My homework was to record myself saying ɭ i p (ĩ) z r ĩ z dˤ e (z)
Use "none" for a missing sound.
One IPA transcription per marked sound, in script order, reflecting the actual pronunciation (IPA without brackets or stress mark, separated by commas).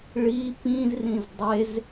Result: ĩ, z